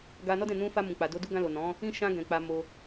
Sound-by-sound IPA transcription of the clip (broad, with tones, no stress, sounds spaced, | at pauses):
ɡ a˧ n ɔ˦ d ɛ̃˦˨ n ũ˧ f a˧ m ũ˨ k͡p a˨ d o˧ d u˦ ɡ ã˧ l o˨ n ɔ̃˨˦ | ĩ˦ ʃ ã˧ ɡ ɛ̃˨ k͡p a˧ m o˧